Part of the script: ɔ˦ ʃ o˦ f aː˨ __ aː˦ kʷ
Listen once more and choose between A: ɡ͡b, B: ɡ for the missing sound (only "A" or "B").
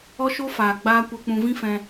A